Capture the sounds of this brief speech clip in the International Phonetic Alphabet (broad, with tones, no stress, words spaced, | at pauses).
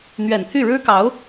n̪ɥɛ˨˩nt̪ʰy˥˩ ɻɻ̩˥kɑ˧˥ʊ̯